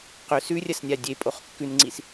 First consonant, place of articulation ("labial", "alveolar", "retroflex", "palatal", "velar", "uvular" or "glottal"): uvular